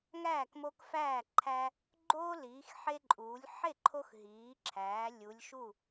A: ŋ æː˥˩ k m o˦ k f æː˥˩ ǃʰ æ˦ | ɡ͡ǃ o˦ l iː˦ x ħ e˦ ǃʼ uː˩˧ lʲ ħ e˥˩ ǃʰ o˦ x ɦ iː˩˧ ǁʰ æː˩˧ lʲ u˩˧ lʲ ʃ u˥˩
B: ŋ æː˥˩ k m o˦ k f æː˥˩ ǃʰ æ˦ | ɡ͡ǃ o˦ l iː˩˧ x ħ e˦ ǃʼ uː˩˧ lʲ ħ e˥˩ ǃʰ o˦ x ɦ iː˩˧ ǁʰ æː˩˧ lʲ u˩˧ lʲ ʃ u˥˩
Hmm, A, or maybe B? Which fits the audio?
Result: B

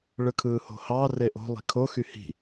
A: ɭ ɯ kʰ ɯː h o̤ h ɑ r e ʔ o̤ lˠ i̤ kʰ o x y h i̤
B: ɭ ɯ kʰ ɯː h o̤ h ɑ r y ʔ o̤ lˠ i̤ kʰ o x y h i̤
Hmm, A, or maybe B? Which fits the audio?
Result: A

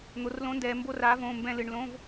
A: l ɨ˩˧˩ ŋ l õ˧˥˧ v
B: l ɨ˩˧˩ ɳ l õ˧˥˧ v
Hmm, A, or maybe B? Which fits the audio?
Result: B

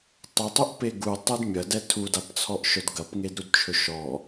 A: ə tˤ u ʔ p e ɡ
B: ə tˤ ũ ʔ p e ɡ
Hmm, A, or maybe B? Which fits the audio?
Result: A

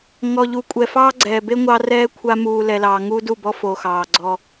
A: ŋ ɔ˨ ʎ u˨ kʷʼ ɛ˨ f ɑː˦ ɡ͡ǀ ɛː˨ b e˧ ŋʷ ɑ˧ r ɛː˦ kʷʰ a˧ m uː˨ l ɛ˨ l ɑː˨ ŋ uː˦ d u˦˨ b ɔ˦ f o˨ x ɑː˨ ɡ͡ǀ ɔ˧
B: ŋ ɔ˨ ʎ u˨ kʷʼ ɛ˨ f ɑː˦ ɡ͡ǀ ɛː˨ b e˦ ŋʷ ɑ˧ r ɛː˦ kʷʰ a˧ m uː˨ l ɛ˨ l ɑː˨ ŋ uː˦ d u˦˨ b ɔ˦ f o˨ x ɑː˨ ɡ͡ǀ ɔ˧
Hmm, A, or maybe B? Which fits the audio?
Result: B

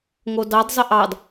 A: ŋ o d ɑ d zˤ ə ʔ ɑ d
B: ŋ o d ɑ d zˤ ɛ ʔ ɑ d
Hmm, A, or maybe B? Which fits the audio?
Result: A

